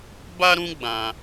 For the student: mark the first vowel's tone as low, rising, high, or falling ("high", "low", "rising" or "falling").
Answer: high